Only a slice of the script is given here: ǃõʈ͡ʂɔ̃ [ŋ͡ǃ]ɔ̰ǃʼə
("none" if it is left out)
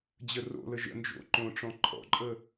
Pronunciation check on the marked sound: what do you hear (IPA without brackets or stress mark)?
ǃʰ